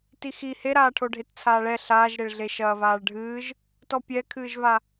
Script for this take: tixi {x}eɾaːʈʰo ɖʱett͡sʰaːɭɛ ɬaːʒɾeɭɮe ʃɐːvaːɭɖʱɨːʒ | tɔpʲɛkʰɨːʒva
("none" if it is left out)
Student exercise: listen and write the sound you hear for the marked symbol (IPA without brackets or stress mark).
h